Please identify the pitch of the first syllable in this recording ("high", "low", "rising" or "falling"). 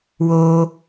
high